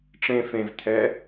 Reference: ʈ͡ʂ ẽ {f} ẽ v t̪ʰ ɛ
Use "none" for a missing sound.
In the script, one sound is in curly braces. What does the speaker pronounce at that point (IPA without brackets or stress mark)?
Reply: f